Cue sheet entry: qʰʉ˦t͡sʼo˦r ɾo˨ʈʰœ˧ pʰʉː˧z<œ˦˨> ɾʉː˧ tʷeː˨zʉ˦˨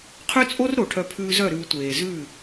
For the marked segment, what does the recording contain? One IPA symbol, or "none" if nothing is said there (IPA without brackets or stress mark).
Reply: œ˦˨